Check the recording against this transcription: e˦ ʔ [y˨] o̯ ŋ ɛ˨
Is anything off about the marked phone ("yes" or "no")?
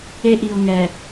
yes